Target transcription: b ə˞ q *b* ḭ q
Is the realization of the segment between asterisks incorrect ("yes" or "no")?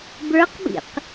no